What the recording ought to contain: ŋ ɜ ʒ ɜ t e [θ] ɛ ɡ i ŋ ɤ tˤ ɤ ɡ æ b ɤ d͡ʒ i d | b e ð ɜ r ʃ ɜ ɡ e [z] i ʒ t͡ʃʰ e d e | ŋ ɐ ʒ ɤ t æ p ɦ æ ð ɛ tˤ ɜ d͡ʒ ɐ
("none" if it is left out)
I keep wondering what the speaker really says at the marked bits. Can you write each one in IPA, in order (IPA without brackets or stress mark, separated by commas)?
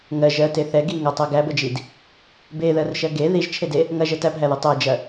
θ, ð